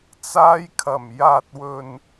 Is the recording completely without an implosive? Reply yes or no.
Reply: yes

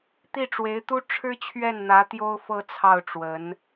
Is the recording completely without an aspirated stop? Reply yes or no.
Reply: no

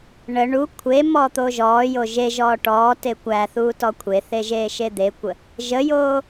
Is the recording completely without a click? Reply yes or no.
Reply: yes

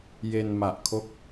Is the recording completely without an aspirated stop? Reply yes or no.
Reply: no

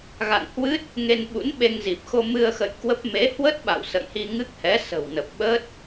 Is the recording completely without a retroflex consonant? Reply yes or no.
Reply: yes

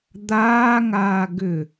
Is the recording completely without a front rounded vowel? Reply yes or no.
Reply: no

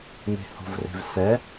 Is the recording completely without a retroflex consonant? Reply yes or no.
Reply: yes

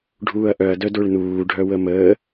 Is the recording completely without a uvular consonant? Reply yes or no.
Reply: yes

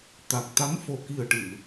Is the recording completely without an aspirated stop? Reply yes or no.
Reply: yes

